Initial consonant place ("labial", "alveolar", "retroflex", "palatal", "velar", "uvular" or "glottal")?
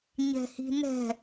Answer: palatal